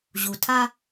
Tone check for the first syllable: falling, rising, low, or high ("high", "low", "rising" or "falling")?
low